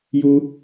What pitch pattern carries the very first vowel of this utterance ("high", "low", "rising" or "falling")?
high